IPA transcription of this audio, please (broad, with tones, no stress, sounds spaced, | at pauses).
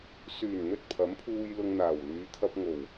s yː˨˩ n n̪ ɵ˧ t̚ pʰ ɐ˨˥ m pʰ uː˧ j l ʊ˧ ŋ n̪ aː˨˩ w l yː˨˧ t̪ʰ ɐ˧ p̚ ŋ o˨˩ w